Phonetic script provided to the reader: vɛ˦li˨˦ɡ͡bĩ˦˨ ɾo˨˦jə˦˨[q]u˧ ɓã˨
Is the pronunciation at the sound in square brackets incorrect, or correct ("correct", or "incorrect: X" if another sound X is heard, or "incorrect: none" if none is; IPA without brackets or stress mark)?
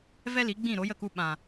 incorrect: k